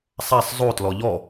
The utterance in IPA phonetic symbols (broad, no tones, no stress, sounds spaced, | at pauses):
sˤ a sˤ zˤ o t l ɔ ʎ ɔ